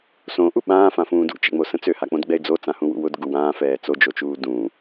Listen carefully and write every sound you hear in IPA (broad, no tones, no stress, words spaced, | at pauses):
sõʔu ɓãːfãfũː dṵt͡ʃɛ̰ŋ͡mosə̃ t͡søhak͡põdɡ͡bɛɪ̯ d͡zot͡sãhũwṵ wʊdɡu wãːfɛː t͡sod͡ʒot͡ʃuː dũ